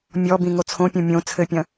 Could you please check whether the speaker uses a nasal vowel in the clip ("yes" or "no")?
yes